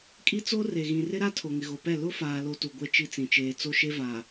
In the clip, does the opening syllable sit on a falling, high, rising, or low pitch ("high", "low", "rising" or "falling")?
high